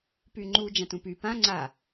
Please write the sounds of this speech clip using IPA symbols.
p y ŋ͡ǃ u d͡ʒ ã t ũ p y p ã ŋ͡ǀ a

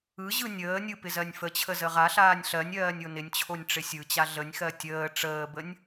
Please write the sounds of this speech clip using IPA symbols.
ɯ ʑ ɯ nʲ əː nʲ ɯ p ɪ z ɜ nʲ f ə t͡ɕʰ ə z ə ʁ a ɬ aː nʲ ɬ ɜ nʲ ɜː nʲ o n ɪ nʲ t͡ɕʰ o nʲ ʈ͡ʂ ɪ sʲ ɯ t͡ɕ a ɮ ə nʲ x ɜ tʲ əː ʈ͡ʂ əː b ə nʲ

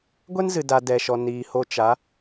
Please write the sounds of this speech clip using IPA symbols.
ɡʷ ɛ˦ n z ɨ˨ d a˨ d ɛ˨ ʃ ɔ˨ n iː˨ h o˧ t͡ʃ a˨˦

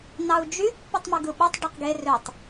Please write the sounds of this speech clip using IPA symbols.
n ɑ u̯ d͡ʒ y pː y tˤ m ɯ ɡ ɯ ɓ u tˤ ɖ ø q ɡ e r ø tˤ

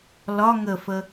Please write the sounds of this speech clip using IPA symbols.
l ɒ ŋ ə f ə

